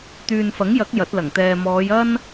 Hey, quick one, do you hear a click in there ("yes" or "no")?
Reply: no